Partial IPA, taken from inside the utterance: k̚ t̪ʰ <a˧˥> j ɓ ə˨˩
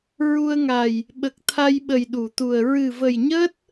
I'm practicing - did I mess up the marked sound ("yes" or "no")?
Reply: yes